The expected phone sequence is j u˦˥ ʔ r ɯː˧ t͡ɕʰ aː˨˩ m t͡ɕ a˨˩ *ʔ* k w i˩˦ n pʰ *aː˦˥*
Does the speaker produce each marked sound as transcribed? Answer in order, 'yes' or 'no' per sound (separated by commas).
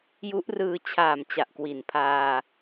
yes, no